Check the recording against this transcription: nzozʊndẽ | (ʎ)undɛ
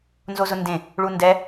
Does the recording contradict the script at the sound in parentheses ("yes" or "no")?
yes